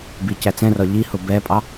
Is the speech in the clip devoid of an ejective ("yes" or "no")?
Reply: no